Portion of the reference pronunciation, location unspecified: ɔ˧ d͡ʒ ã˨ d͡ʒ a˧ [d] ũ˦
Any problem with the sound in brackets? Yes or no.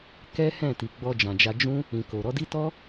yes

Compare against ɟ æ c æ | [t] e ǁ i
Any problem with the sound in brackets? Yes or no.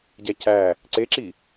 yes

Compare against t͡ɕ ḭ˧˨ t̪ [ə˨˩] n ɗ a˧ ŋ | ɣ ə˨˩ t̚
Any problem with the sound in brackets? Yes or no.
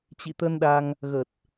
yes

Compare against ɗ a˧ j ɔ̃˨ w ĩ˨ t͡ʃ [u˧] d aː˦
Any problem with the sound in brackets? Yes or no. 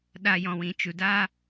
yes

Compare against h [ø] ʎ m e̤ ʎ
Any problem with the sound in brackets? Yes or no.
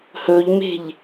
yes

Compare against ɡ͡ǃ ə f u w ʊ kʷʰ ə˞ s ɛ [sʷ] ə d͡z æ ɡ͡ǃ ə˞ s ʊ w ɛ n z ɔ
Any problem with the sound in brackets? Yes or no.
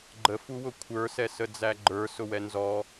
yes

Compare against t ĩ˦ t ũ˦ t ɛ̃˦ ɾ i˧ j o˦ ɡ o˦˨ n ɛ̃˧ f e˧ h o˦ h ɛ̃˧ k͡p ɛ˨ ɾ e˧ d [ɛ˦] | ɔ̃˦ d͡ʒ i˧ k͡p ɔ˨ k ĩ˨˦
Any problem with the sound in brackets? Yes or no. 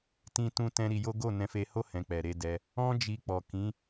yes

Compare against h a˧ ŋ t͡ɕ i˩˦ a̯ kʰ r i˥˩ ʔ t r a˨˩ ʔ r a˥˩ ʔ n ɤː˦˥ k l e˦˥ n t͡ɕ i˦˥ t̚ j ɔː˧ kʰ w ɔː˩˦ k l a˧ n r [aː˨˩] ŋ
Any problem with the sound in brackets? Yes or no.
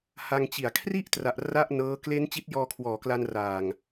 no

